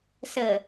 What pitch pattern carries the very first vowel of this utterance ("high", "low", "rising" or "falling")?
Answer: low